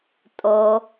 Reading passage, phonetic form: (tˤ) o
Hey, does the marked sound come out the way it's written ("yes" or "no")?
no